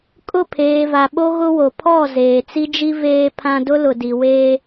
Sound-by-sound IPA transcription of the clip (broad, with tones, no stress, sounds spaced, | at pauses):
kʼ ʊ˦˨ pʰ eː˨ v a˨ ɓ o˦ ɣ ʊ˦ w o˨ pʰ ɔ˦˨ z eː˨ t͡s i˦ d͡ʒ i˦ v eː˦ pʰ ã˦ d ʊ˦ l ʊ˨ d i˨ w eː˦